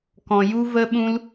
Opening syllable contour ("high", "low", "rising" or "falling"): low